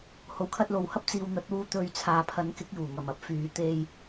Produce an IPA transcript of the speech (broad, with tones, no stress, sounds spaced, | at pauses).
h o˨ w kʰ ɐ˧ t̚ l o˨ w h ɐ˥ p̚ t͡s iː˨ w n̪ ɐ˨˥ t̚ w uː˧ t̪ ɵ˧ ɥ t͡sʰ aː˨ pʰ ɐ˨˥ n k ɪ˨˥ k̚ j uː˨˩ ŋ ɐ˨˩ m ɐ˥ p̚ f yː˨ t̪ e˧ j